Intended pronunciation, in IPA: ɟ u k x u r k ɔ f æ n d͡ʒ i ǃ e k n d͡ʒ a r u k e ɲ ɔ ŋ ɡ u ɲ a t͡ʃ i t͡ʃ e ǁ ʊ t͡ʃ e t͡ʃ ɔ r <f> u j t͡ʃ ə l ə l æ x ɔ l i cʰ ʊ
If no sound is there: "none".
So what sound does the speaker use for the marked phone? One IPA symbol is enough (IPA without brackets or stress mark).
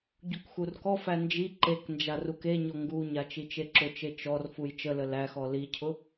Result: f